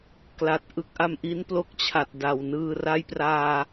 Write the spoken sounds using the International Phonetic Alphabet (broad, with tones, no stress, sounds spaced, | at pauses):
k l a˨˩ t̚ ʔ ɯ˦˥ k̚ ʔ a˧ m ʔ i˦˥ n p l o˦˥ k̚ t͡ɕʰ a˨˩ t̚ d a˨˩ w n ɯː˧ r a˦˥ j p r aː˧